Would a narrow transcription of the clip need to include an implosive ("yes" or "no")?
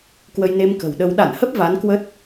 yes